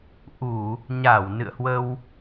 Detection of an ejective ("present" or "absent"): absent